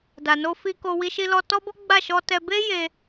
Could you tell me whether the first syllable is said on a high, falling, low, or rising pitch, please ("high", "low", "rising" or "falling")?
low